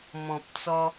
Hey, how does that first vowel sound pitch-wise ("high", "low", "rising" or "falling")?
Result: low